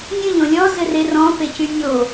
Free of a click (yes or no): yes